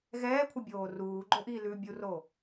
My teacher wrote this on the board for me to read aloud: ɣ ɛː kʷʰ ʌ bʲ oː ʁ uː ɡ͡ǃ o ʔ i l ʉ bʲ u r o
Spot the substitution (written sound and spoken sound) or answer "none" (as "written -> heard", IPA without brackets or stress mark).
ʁ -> r